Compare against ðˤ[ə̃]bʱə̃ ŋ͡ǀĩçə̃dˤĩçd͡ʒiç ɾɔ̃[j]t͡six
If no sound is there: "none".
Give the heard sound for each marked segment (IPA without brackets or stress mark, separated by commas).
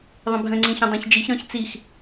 ə̃, ç